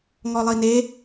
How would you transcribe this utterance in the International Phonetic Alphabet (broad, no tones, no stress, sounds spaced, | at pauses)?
ŋ ɔ lˠ i n e